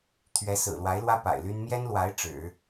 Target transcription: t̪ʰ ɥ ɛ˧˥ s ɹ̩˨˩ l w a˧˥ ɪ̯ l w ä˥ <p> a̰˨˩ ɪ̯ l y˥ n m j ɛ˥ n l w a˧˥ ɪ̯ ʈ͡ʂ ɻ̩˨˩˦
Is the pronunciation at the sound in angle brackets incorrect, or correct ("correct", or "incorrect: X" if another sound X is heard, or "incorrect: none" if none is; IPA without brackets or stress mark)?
correct